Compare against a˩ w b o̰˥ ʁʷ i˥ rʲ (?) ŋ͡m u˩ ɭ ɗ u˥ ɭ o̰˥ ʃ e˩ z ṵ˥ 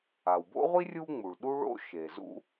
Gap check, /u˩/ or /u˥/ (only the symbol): u˥